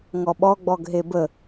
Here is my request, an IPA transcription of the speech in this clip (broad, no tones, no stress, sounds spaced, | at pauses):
ŋ ɔ ɓ ɔ ɡ͡b ɔ ɡ ɦ e b ə